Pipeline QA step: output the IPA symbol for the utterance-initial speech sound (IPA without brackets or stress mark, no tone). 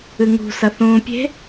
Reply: ɨ